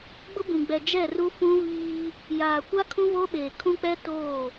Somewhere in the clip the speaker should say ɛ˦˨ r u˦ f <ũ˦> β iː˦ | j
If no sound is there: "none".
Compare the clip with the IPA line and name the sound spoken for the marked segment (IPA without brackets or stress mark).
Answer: ũ˦